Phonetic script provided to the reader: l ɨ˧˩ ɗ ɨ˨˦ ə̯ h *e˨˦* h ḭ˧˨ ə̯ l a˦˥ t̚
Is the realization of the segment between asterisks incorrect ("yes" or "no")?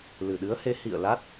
no